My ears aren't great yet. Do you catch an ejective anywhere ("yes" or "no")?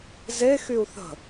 no